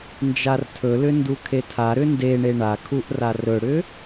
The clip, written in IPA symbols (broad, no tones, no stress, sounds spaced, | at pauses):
n d͡ʒ a r tʰ ɵ l ʏ n d u kʰ e tʰ a ɾ ʏ n d e ɳ e ɳ a kʰ u ʔ r a r ɵ ɽ ʏ